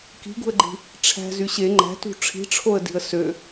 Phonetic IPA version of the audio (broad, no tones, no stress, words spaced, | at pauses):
ki̤ɡṳə̯ɡ͡ǃi̤ | ʈ͡ʂʰæ̤zy ɕe ŋ͡ǃæ̤tṳ ʈ͡ʂʰi̤ʈ͡ʂʰoə̯di̤ə̯ sø